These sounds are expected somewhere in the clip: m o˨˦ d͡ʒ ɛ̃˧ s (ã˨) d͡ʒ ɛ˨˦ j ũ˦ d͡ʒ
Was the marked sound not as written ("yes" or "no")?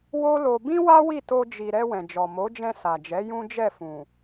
yes